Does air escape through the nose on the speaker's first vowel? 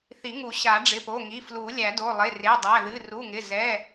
no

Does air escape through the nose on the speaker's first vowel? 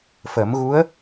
no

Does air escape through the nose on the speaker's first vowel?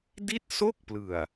no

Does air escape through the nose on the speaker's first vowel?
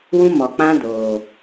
yes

